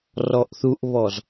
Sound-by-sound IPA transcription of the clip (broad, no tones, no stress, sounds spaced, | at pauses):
r ɔ ʔ θ u ʔ β ɔ z